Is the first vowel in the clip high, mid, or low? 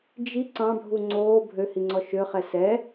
high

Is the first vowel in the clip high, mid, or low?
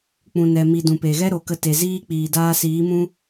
high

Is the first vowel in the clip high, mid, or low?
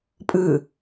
high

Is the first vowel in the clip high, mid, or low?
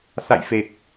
low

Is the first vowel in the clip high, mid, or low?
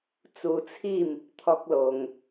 high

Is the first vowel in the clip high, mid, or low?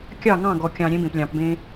low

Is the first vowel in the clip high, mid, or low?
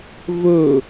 mid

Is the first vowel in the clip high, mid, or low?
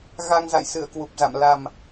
low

